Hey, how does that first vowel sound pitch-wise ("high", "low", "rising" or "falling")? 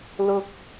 high